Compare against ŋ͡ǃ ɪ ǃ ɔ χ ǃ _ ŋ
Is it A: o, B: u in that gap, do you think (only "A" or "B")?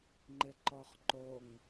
A